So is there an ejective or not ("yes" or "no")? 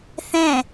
no